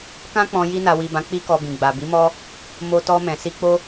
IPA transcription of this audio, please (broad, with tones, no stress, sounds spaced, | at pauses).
k ã˧ k͡p ɔ̃˨ j i˧ n a˨ w i˨ b ã˨˦ k͡p i˦ k ɔ˧ b ĩ˨ ɡ͡b a˨ b i˨˦ m ɔ˦ | m o˨ t ɔ˧ m ɛ̃˨ s i˧ k͡p o˦